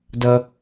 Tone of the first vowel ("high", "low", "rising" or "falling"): high